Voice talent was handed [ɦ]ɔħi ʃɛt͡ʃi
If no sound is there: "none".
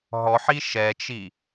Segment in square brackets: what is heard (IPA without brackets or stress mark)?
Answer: ɦ